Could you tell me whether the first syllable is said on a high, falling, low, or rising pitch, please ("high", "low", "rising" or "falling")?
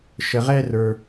low